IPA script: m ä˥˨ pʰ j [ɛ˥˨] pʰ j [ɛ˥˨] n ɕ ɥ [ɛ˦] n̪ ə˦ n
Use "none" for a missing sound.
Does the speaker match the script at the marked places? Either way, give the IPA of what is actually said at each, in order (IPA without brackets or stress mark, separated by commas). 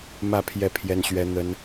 ɛ˥˨, ɛ˦, ɛ˦